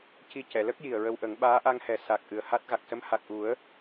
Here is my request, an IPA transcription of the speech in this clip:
c i˧ c ɛ˨˩˨ l ə˦˥ k̚ j i˨˩ ə̯ ɹ ə˧ w ʔ ə˨˩˦ ŋ ɓ aː˧˥ ʔ a˧ ŋ h ɛ˨˩˦ s a˨˩ k̚ ʔ ɨ˨˩ ə̯ h a˦˥ t̚ ɣ a˨˩ k̚ s ə˧˥ m h a˨˩ k̚ ʔ u˨˩˦ ə̯

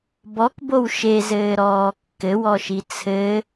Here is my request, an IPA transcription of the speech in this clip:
b ɔ k b o w ʃ e z ɘː ɾ ɔː kː ɘ w ɔ ʃ i t͡sʰ ɘ

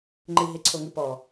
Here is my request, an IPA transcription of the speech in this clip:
ŋ͡ǃ ɨ ɦ e ǀʰ o ŋ ɨ p ɔ

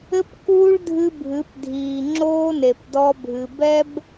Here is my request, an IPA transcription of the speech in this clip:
ɘ˦ p k uː˦ ɭ dʱ ɨ˦ bʱ ɨ˨˦ p dʱ iː˨ ŋ͡ǁ oː˦ n e˨ p d ɔ˦ bʱ ɨ˨ b ɛ˦ b

